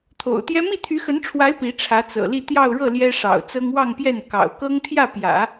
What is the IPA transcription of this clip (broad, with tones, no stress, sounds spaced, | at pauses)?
t̪ʰ o̰˨˩ ʊ̯ t̪ j ɛ˥ m i˥˩ t̪ʰ y˧˥ x ə˧˥ n ʈ͡ʂʰ w a˧˥ ɪ̯ p i˧˥ ʈ͡ʂʰ ä˧˥ t͡s ɤ̰˨˩ l i˥˧ t̪ j ɑ˥˧ ʊ̯ ɻ ɤ˥˩ l j ɛ˥ ʂ ɑ̰˨˩ ʊ̯ t͡s ɤ˥ ŋ w ɑ˥˧ ŋ p j ɛ˥˩ n k ɑ̰˨˩ ʊ̯ k ɤ˥ ŋ t̪ʰ j ä˥˩ p j ä̰˨˩˦